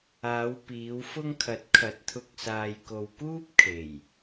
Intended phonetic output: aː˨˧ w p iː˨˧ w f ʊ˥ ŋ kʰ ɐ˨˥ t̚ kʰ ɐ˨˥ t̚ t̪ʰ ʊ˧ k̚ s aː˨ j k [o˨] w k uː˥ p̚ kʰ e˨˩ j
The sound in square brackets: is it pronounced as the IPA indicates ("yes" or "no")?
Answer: yes